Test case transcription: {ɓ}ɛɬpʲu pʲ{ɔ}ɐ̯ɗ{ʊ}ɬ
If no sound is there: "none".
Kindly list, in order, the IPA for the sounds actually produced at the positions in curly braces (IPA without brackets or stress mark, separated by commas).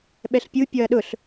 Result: ɓ, ɔ, ʊ